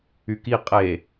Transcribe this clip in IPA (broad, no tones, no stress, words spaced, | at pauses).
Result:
yki qʼe